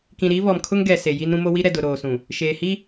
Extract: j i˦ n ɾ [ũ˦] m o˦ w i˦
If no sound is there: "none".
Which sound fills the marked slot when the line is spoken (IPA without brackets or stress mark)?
ũ˦